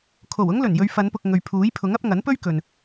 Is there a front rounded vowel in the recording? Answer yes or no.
no